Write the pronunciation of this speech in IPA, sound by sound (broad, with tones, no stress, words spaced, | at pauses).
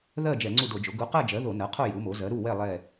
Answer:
ðɜ˥˨ d͡ʒɛ˧˩˧ŋ͡ǀu˥˨do˧˩˧d͡ʒo˩˥ ɡu˩˥qɜ˥˨d͡ʒɜ˩˥ ðo˧˩˧nɜ˩˥qʰo˥˨ ju˩˥mo˩˥ zɜ˩˥ɾu˥˨wɛ˥˨ lˠɛ˥˨